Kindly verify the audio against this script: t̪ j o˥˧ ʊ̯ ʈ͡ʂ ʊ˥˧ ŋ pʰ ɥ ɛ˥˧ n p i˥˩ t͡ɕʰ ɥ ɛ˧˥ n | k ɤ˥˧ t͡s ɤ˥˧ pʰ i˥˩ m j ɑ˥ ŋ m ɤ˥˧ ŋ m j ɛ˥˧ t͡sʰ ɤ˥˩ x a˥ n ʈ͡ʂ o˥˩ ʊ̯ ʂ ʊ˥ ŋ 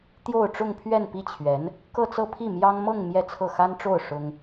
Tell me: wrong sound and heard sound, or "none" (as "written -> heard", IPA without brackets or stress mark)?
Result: none